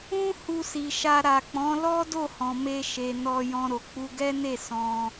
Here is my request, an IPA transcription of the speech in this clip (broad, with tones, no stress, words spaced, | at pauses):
ũ˦ hu˧si˨ʃa˧ ɾa˨k͡pɔ̃˨˦lɔ˦ do˦˨hɔ̃˨me˧ʃe˨ nɔ˧jɔ̃˧ ɾo˨k͡pu˧ɡɛ˦ne˦˨ sɔ̃˧